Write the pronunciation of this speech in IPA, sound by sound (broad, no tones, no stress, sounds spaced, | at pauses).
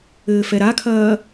ɘː f ɛ ɾ a kʰ ɐː